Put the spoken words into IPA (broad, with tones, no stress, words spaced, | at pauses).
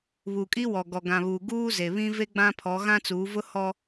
βuː˨kʼi˦wɔ˨ ɡɔ˨ɡã˨βuː˨ ɡuː˦ze˨βĩ˦ ve˦ɡ͡bã˦pʰɔ˨˦ ɣã˦t͡suː˨˦vʊ˦hɔ˦